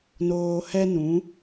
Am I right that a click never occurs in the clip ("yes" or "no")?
yes